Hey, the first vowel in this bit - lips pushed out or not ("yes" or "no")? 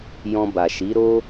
yes